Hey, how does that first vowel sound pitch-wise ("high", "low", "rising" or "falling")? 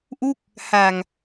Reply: falling